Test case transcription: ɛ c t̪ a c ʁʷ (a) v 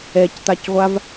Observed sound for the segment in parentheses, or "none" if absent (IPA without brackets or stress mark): a